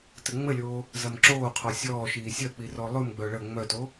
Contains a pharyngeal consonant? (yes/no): no